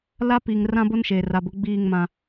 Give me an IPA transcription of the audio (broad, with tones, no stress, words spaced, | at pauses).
la˦pi˨ŋ rã˦bo˦nʃeː˨r a˨bʊ˨˦ ɡ͡biː˦˨ŋmã˨